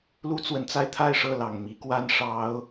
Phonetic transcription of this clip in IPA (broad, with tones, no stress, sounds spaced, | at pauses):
l u˦ t͡s w ə˨˦ n t͡s a˧ ɪ̯ t̪ʰ a˥˨ ɪ̯ ʂ ɤ˥˨ l ɑ˨˩ ŋ m i˨˦ k w a˦ n ʂ ɑ˨˦ ʊ̯